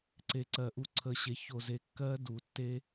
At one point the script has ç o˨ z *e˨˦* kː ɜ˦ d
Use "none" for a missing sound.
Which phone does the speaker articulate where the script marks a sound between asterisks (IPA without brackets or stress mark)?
e˨